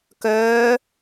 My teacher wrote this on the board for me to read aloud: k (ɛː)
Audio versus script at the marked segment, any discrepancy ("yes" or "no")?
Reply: yes